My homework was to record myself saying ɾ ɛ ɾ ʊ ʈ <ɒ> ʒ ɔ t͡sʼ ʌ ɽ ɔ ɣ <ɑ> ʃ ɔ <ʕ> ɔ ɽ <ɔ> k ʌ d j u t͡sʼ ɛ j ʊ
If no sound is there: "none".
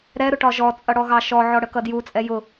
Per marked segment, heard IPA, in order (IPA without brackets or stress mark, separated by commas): ɒ, ɑ, ʕ, ə